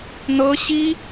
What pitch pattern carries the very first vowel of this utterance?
high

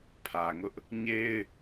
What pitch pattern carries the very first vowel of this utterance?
low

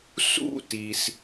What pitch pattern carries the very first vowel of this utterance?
falling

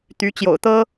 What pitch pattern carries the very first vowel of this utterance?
rising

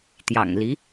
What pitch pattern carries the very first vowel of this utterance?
low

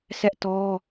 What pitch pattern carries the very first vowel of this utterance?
high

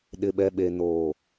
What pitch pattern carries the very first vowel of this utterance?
low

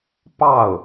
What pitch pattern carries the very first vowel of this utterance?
falling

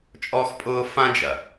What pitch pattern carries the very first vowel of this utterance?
high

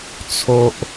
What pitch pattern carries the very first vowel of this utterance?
high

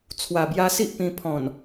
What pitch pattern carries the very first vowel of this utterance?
low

